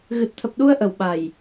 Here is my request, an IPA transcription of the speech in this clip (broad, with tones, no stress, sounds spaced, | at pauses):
ɣ ɨ˨˩ t̚ t̪ʰ ə˨˩ p̚ ɗ u˧ ə̯ ʔ ə˨˩ w ɓ a˨˩ j